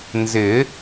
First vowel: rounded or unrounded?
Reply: unrounded